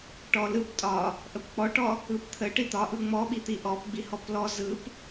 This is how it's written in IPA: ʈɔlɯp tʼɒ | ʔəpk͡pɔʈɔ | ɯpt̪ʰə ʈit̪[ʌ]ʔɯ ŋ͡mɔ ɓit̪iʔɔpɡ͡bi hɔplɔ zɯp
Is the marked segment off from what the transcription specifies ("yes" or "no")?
yes